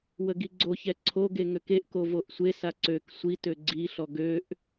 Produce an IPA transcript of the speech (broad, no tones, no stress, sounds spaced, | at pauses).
w ə ɡ i ɡ͡ǀ o ç ɛ ǀʰ o ɡ e ŋ ø k e ʔ k o v o ʔ sʷ e s a ǀ ø k sʷ i t ø ɡ͡ǀ i ɬ ɔ ɡ ø ʔ